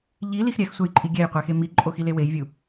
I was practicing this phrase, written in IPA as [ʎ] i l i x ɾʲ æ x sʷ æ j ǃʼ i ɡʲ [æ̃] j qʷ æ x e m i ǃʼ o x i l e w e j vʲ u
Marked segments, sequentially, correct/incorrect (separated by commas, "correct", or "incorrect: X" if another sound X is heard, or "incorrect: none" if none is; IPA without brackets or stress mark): correct, incorrect: æ